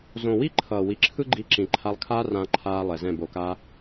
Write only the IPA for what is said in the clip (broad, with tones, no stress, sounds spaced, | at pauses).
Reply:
z õ˨ w i˦ ǃʰ ʌː˨ w i˨ ǁʰ ɯ˦ ɡ͡ǃ i˧ ǁ ĩ˨ ǃʰ a˧ lˠ kʰ aː˦ r ã˧ ǃʰ aː˧ lˠ ɛ˨ z ɛ̃˦˨ b o˨ k a˧